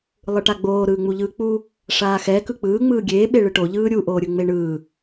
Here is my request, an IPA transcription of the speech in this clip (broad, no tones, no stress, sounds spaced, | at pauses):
lˠ ɯ ʈ a ɡ͡b oː ɾ ɯː ŋ͡m u ʎ ɯː k͡p u | ʂ aː x ɛ k ɯ k͡p ɯː ŋ͡m ɯː ɡʲ eː ɓ e ɭ ɯ ʈ o ʎ ɯː ɾʲ u ʔ oː ɾʲ ɯ ŋ͡m e ɳ ɯː